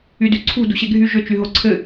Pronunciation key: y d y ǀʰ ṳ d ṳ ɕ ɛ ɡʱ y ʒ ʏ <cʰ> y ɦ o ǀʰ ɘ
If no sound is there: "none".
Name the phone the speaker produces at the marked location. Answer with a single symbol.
t͡ʃ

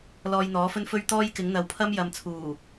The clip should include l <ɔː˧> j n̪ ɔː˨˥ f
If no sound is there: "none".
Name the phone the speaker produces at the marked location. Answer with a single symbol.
ɔː˧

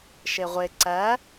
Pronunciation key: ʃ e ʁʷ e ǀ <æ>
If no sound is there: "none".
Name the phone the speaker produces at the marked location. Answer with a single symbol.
æ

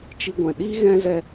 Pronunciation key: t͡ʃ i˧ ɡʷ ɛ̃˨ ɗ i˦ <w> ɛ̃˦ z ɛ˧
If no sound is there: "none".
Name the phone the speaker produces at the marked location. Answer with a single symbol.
ɣ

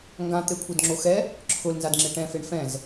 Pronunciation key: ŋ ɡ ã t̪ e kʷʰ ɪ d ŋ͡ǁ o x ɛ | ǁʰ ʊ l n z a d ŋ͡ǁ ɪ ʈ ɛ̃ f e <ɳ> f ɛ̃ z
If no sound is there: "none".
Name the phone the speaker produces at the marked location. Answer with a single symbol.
ɳ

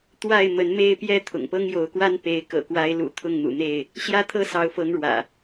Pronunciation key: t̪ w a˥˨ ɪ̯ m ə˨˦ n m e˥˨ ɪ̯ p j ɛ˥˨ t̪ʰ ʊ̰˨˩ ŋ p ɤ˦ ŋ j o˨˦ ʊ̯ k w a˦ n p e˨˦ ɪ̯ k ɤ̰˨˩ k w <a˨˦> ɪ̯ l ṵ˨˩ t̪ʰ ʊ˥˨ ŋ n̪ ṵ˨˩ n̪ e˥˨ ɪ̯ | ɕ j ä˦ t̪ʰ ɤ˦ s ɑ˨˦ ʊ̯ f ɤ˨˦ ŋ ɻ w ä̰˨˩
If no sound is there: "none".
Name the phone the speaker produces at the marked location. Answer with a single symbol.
a˨˦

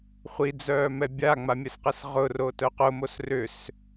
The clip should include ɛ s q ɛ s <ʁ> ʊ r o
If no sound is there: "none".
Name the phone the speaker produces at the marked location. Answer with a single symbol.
ʁ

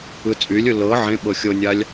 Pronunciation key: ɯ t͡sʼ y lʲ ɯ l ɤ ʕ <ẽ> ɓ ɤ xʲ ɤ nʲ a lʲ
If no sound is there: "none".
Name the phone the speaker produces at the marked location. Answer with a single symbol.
ẽ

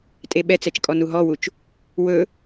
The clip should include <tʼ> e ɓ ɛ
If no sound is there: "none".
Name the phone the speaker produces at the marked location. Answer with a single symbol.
tʼ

